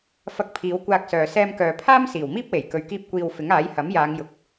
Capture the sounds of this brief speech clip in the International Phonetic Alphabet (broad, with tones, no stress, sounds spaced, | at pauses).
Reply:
f ɐ˧ k̚ pʰ iː˨˧ w kʷ aː˧ k̚ s œː˨ s ɛː˧ m k œː˨ pʰ aː˥ m s iː˨˩ w m iː˥ p̚ w e˨˩ j k ɵ˨ ɥ k iː˧ p̚ kʷ iː˧ w f ɪ˨˥ ŋ aː˨˥ j h ɐ˨˥ m j aː˨˧ ŋ j ʊ˨˥ k̚